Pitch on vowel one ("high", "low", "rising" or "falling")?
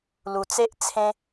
low